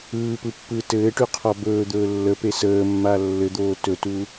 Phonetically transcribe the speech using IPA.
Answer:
ɯːpɯpːɯː tɘːʈyqʰɔ bɵːd̪ɵː lːəpe səːmːa lːɘd̪oː tɵtu

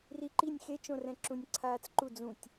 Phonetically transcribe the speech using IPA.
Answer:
riǃinʲ xet͡ʃõrɛ̃ǁũnʲ ǀʰaːt͡sǃu d͡zũtʲ

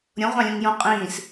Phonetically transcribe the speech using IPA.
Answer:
ɾʲõʁʷɑ̃lʲõŋ jõ qʼĩːs

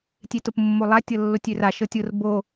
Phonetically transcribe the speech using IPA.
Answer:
tʲetʊpmːolˠa tʲɤlːotʲøra ʃɤtʲʊr bo

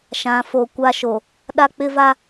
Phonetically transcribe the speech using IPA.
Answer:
ʃã˨ fo˨ kʷa˦ʃo˨ | ɗa˦k͡pɪ˦va˦

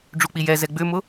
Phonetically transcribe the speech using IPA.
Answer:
ɖ͡ʐuk͡pijɛzɛ ɡ͡bʏmʊ

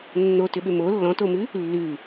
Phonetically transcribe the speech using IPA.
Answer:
nːotʏɓʏ mo lːɔ̃tomʉ | lːʉ

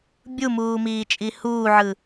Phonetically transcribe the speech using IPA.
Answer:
bʲumuːmiːt͡ʃʼi huːʕɯ

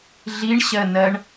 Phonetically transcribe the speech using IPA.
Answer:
ɮiɳɕɜnɜɳ

